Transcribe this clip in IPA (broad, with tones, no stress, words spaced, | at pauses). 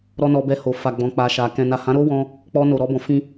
ɾɔ˧ nɔ˧bɛ˧ho˨ fa˨ ɡ͡bɔ̃˨k͡pa˨ʃa˨ kɛ̃˨ na˨hã˨˦ɾo˦wɔ̃˧ | k͡pɔ˧ no˨ɾɔ˧bɔ̃˨fĩ˧